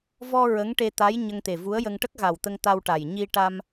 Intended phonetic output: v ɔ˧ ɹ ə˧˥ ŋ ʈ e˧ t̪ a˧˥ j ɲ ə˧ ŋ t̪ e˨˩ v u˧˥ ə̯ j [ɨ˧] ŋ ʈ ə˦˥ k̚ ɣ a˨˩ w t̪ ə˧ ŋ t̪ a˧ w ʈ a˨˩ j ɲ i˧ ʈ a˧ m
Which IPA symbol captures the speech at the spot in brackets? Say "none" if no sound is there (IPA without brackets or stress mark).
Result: ə˧